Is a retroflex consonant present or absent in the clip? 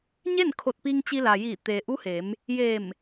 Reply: absent